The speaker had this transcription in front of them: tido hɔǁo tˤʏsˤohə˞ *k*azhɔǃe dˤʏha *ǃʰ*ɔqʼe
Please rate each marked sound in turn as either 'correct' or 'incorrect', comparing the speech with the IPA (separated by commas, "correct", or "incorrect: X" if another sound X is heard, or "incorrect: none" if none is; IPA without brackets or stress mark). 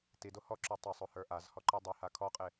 incorrect: ʔ, incorrect: kʰ